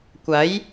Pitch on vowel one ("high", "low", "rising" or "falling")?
rising